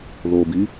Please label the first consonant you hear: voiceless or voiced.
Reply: voiced